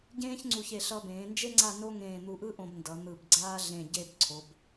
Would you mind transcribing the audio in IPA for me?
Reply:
ɟ ẽː˥ ç ŋ͡ǀ u˧˩ ç e˧˩ ɬ ʌ˧ b ẽː˩˧ n d͡ʒ e˥ ŋ͡ǀ a˥˧ n o˥ ŋ ẽː˧˩ n̪ u˧˩ ʔ ɯ˥ ʔ õ˧ b n d ʌ˩˧ n̪ ɯ˧˩ b ɡ͡ǀ aː˥ ɮ ẽ˧˩ ɟ e˥˧ b ǀʰ o˩˧ b

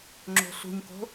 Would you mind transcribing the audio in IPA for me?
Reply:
ŋ͡ǁ o̤ ɬ ṳ ɲ k o̤

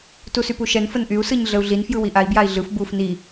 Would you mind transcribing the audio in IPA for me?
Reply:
t u s y p u ʃ ɛ n f ə n ʔ y u̯ s ɯ ɲ ɮ ə u̯ ɮ i n f j ɯ w i ʔ a i̯ b j a i̯ ɮ ɯ f b u f n i

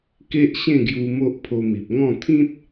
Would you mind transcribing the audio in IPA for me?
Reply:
k e˦ ʔ ɕ ẽ˥˧ ɡ j u˧ m o˦ ʔ pʰ o˧ m i˨ p̚ ŋ ɔ̃˥˧ t̪ʰ ĩ˦ t̚

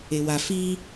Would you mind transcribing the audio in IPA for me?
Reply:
e w a f i

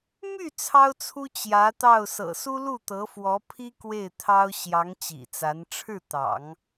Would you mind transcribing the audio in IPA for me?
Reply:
m y˥˩ t͡sʰ ɑ˥ ʊ̯ t͡sʰ u˥ t͡ɕ j ä˧˥ t̪ ɑ˥˩ ʊ̯ s ɤ̰˨˩ s u˥ l u˥˩ t̪ ɤ˧˥ f w ɔ˧˥ pʰ i˥ k w e˥˩ ɪ̯ t̪ʰ ɑ˥ ʊ̯ ɕ j ɑ˧˥ ŋ t͡ɕ ḭ˨˩ t͡s a˧˥ n ʈ͡ʂʰ ɻ̩˥˩ t̪ ɑ̰˨˩˦ ŋ

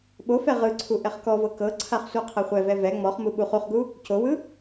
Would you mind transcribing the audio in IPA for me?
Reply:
ɓ o f ɛ ʁ ɯ ǀʰ u ʔ ɛ χ k ɔ v ɤ k ɤ ǀʰ a χ sʷ a qʰ ɛ χʷ ɛ v ɛ v ɛ ŋ͡m ɔ χ m u ɓ u χ u χ ɡ u | c o w ɯ

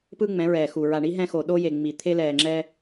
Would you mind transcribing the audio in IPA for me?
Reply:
p ɯ˦ ŋ͡m ɛ̃˨˦ ɹ ɛː˨ x u˨ ɹ a˨ ɳ i˨˦ ɦ ɛ̃˦ x o˨ ɗ o˦ j e˨ ŋ͡m i˨ t̪ʰ e˦ l ɛː˨ ŋ͡ǁ ɛ˦

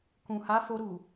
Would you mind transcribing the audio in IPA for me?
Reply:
k ũ˨ h a˨˦ f o˧ ɾ u˨

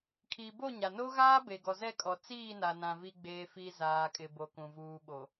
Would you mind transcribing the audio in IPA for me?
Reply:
kʰ i˨ b o˦˨ ɲ a˨ n o˦ ɣ aː˦ b e˨ ɡ ɔ˨ z ɛ˦˨ kʼ ɔ˨ t͡s iː˦˨ n a˨ n ã˨ v i˨ ɡ͡b eː˨ f i˨ z aː˨ kʼ ɪ˨ b o˨ k ũ˨ v uː˨ ɓ o˨

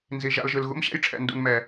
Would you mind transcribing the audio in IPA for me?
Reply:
n z i˨ ʒ a̰˧ l ʒ ɯ˨ l ɣ ṵ˦ m ɕ ɛ̰˦ j ʈ͡ʂʰ ɛ̰˨ n d ṵ˨ n m ɛ˨

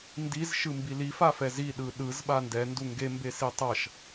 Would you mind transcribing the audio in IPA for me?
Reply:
n d i z ʃ ɯ m b i l i f a f ɛ z i ɗ ɯ ɗ ɯ z ɓ a n d ɛ n d u ŋ ɡ e m b e s i tˤ ʌ ʃ

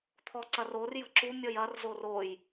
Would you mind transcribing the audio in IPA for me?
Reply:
t̪ʰ ɔ ǀ ɐ r o r j ə̤ ǁ u mʲ ɔ j ɐ r z o r o j

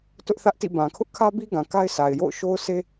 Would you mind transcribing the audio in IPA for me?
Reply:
t ʊ˦ ʔ θ ä˦ ʔ t ḭ˦˨ b ã˨ kʰ ʊ˦ ʔ kʰ ä˦ b i˦ ɡ ã˨ k a˦ ɪ̯ s a˨ ɪ̯ j o̰˦˨ ʊ̯ ʃ o˦ ʊ̯ s e˦

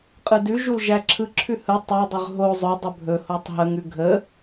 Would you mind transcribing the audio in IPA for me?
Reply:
qʼ ɯ d ʉ ʒ u l ʒ æ ǁʰ ɯ ǁʰ ʉ h ɯ tˤ æ dˤ ɵ ʁ ɦ o zˤ ɵ dˤ ɵ bʱ ɵ h o tˤ ɦ ə ŋ ʉ ɡʱ ə

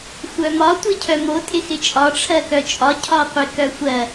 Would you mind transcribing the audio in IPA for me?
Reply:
xʷ œ m ɒ tʷ i cʰ œ m o tʼ ɪ x ɪ t͡ʃʼ ɒ ʈ͡ʂʰ ɜ k œ t͡ʃʼ ɒ cʰ ɒ qʷ ɪ k œ xʷ ɜ

